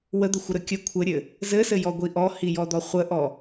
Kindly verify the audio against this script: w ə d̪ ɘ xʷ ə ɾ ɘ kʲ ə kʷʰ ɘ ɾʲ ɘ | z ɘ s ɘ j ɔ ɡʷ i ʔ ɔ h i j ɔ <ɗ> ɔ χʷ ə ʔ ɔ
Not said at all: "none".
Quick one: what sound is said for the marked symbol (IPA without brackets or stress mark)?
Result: d̪